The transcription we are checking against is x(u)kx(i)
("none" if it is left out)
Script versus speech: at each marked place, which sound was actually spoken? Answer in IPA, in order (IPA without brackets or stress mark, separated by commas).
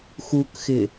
u, ɪ